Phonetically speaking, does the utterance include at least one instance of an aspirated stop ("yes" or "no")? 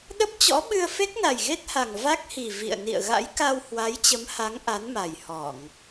no